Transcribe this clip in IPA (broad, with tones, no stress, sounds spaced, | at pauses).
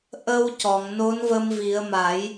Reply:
ʔ ə˧ w c ɔ˨˩˨ ŋ n o˧˥ n v ə˧ m v i˨˩˦ ə̯ m a˨˩˦ j